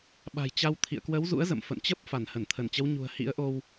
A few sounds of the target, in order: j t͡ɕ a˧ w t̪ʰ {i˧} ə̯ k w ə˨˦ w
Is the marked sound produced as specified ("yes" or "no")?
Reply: no